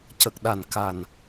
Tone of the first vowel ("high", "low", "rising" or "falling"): low